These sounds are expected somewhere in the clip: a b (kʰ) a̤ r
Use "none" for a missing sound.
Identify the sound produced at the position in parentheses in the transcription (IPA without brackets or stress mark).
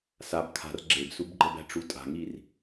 kʰ